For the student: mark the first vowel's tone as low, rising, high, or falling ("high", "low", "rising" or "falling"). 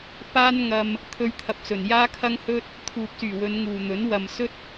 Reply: high